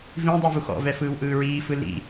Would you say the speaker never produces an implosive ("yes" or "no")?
yes